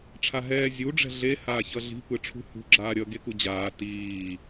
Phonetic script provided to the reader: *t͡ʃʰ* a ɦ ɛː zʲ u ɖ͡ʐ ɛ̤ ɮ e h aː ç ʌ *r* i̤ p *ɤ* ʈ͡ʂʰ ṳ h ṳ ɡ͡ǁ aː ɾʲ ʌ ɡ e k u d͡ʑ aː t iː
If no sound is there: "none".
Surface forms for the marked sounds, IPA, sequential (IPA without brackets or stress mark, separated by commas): ʈ͡ʂʰ, ɮ, ɯ